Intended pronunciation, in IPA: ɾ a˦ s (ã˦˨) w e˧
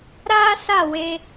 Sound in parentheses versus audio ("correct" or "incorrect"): incorrect